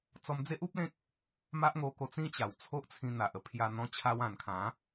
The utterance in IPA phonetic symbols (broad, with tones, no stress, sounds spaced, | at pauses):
t͡s ɔ˧ m d͡z e˦ ʔ u˦ p̚ l ẽ˦ k̚ | m a˦ ʔ ŋ o˧ k o˧ t͡s ĩ˦ t͡ɕ a˨˩ w t͡sʰ o˦ ʔ t͡sʰ ĩ˧ n̪ a˨ ʔ ə˧ pʰ j a˧ n̪ ɔ̃˧ t͡ɕʰ a˧ w ã˨˩ n kʰ ã˨˦